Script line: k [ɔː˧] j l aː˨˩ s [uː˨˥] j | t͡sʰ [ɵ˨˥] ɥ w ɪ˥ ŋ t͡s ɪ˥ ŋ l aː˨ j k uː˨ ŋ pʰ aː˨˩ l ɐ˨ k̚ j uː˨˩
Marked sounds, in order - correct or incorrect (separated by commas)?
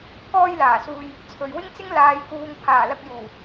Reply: correct, incorrect, incorrect